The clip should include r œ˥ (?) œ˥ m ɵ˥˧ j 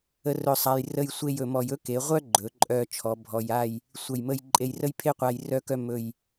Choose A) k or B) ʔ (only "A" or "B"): A